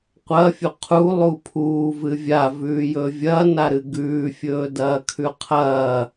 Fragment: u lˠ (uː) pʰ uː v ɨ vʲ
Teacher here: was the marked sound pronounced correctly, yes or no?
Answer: yes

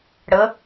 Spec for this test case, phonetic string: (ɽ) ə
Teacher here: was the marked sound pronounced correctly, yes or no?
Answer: yes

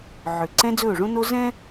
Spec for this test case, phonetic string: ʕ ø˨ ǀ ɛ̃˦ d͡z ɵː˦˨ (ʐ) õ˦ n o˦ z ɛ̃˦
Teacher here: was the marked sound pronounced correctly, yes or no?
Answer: yes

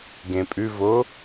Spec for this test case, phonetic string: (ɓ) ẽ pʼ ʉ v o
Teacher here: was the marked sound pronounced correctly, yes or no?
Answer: no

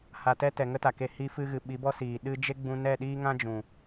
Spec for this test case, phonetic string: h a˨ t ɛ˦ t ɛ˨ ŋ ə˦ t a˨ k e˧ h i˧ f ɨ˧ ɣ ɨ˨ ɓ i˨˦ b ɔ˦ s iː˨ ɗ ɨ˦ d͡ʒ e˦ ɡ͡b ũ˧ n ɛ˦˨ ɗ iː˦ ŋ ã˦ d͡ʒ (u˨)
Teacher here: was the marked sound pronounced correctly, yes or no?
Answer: no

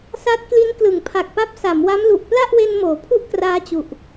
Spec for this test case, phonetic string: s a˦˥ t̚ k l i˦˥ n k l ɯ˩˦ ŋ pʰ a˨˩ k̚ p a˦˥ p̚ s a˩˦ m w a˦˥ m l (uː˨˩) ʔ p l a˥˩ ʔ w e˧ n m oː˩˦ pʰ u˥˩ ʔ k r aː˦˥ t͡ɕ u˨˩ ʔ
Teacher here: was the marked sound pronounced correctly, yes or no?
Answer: no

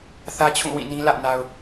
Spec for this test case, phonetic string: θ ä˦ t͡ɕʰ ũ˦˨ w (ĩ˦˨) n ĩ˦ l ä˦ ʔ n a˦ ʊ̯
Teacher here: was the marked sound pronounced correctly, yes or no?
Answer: yes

